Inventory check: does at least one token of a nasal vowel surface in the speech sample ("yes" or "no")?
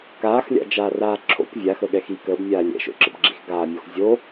no